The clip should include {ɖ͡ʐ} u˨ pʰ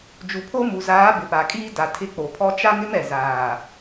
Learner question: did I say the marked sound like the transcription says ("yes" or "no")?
no